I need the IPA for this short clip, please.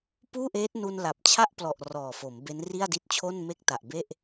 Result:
puː˥˩ʔeː˦˥t̚nu˧n la˨˩p̚t͡ɕʰa˥˩ʔplɔ˨˩ʔ rɔː˨˩fo˩˦m be˦˥nri˥˩a̯di˦˥t̚t͡ɕʰo˥˩n me˥˩k̚ta˨˩ʔbe˥˩ʔ

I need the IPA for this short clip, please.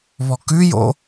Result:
βɔkʉjo̰

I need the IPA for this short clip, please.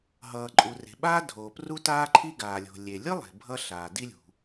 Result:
ɦʌː˩ǃʼu˩re̤˩ɓaː˥ dʱoː˩pru˥taː˥ǃʰi˥ ɡaː˩lʲo̤˩ lʲe˩lʲɯ˥lˠe̤˩ bʱʌ˥ ɬaː˩di˥lʲṳ˩

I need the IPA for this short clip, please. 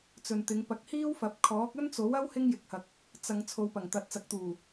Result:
t͡sɵ˨nt̪ɪ˨˧ŋ pɐ˨˥k̚hiː˥wfɐ˨˥p̚kʰɔː˨˥k̚ ɵ˥nt͡so˨˥wɐ˥w hɪ˥ŋjɪ˨˥k̚hɐ˨k̚ | t͡sɐ˨ŋ t͡sʰo˨wpɐ˨˩ŋt̪ɐ˨t̚ t͡sɐ˨k̚t̪uː˨˩

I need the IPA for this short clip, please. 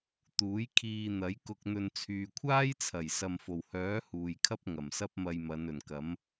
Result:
t̪uː˨˥jkʰiː˧n̪ɐ˨˥jkʊ˧k̚ n̪ɵ˧n t͡sʰyː˨kʷʰaː˥jt͡sʰɐ˨˩j sɐ˨mfo˨˩whœː˨˥ huː˨jkʰɐ˥p̚ ŋɐ˨˩msɐ˥p̚mɐ˧jmɐ˨˧n ɵ˨˩nkɐ˨˥m

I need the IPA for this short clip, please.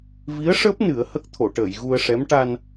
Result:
vi˧˥ə̯ʂəː˦˥p̚ nɨ˨˩˦ə̯hə˦˥k̚t̪ʰo˨˩˨ʈəː˨˩˨j ɣu˧ə̯ʂɛ˧˥m ʈa˧n

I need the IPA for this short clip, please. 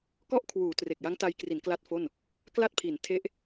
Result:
kɔ˥˩ʔkʰwuː˩˦ tre˨˩k̚ja˦˥ŋta˧jkri˩˦n kla˥˩t̚fo˥˩n | kla˥˩t̚pʰi˩˦n tʰe˦˥ʔ

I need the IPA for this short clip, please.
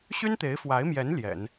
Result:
ɕy˥nt̪e˧˥ɪ̯fwa˧˥ɪ̯mjɛ˧˥n ljɛ̰˨˩˦n

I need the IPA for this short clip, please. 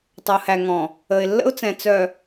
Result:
tˤə˨ʊ̯hæ˨ŋɔ̃˨ | ə˨ɪ̯lːə̰˦ʊ̯t͡sɛ̃˨ t͡sœ˨

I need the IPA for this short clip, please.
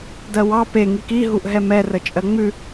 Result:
dɜwɑ pe ŋiki ɦuʔɦɛmɛ rət͡ʃʼɜŋ͡mʉ

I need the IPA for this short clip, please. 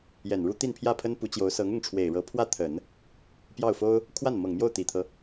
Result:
jɛ˨˩nɻu˥ t̪i˥˧npʰjä˥˩pʰə˥n pu˧˥t͡ɕjo˧˥ʊ̯ sɤ˧˥ŋʊ˥˩ŋʈ͡ʂʰwe˨˩ɪ̯ ɻɤ˧˥pʰwä˥˩ t̪ʰə˨˩˦n | pjɑ˥˩ʊ̯fo˥ʊ̯ | kʰwa˥˩nmɤ˨˩ŋmjo˥˩ʊ̯ t̪i˨˩t̪ʰɤ˦

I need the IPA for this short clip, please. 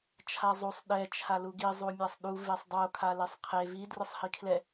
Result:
t͡ʃʰazˤusˤ ɗɛ t͡ʃʰaluɡi zˤumʲasˤɗu vesˤdˤo kʰalesˤqʰe vi drɯsˤhikʰlɛ

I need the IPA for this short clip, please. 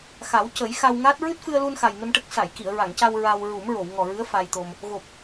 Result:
xa˨˩˦wcə˨˩˦j xa˧wŋa˦˥t̚ ɹɨ˦˥t̚fɨ˧ə̯lu˧n xa˨˩jnə˧mʈə˦˥k̚ sa˨˩˨jki˨˩˨ə̯ ɹa˨˩˨ŋca˧w ɹa˧w ɹu˨˩˦mɹo˨˩˨wŋɔ˨˩ɹɨ˧˥ə̯ fa˧jt̪o˧m | ɣo˨˩p̚

